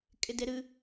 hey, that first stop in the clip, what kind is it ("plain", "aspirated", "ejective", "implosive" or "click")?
ejective